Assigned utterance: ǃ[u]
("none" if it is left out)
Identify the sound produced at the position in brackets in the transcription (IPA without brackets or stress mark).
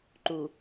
u